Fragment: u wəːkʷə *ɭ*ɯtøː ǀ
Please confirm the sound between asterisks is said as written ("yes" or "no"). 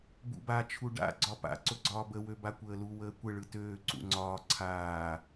yes